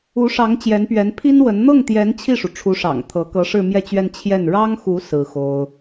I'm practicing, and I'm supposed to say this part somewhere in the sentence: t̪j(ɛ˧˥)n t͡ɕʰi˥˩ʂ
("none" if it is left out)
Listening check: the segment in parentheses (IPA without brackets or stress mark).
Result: ɛ˧˥